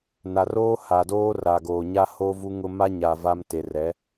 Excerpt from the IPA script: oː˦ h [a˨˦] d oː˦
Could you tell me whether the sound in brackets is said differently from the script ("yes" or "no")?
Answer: yes